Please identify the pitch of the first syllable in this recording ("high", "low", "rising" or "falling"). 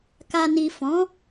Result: low